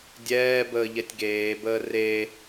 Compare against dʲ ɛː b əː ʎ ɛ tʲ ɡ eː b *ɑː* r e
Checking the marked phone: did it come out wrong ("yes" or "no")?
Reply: yes